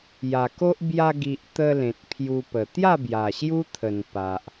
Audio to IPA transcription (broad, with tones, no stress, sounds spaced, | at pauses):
j a˨˩ k o˦ ʔ b j a˧ ɡ i˨ ʔ t̪ ə˧ l ẽ˨ t̚ pʰ j u˧ p ə˨˩ t̪ j a˥˧ b j a˨˩ ɕ j u˦ t̪ʰ ə˨˩ n p a˨ ʔ